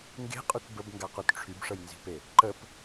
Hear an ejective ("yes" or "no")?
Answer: yes